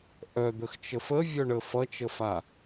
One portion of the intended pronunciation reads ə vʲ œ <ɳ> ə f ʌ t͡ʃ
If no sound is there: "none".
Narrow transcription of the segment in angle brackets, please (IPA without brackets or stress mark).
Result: ɳ